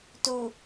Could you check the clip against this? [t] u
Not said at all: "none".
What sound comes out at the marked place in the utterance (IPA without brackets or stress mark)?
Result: t